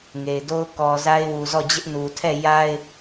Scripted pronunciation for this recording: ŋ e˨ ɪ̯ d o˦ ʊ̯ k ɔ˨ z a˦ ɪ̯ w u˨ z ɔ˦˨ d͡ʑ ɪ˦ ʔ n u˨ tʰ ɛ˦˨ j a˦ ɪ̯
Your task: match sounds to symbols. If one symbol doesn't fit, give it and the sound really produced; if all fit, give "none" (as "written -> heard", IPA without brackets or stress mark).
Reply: none